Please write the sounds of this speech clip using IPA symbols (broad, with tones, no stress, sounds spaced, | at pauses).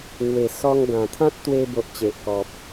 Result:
ŋ w e˨˩ s ɔ˧ ŋ ɡ ã˨˩ t̪ʰ ã˦ t̚ t̪ w e˧ b o˨ ʔ t͡ɕ e˨ ʔ k ɔ˨ p̚